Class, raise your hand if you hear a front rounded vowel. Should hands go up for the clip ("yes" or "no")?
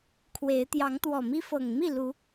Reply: no